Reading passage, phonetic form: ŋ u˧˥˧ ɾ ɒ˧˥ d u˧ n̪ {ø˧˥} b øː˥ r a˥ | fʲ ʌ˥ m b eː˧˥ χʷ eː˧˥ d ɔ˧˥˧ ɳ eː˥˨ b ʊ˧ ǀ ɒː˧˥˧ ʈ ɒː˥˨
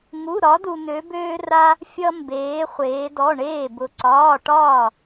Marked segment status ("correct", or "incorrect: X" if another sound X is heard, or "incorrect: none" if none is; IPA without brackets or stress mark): correct